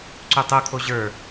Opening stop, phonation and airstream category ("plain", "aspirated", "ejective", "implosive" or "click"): click